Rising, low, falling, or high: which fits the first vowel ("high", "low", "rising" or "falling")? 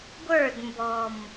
falling